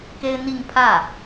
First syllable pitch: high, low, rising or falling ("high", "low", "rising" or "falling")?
high